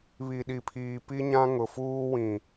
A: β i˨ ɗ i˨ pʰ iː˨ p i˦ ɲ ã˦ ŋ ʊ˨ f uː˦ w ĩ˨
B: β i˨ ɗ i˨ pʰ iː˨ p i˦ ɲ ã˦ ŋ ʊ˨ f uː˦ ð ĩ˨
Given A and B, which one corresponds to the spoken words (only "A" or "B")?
A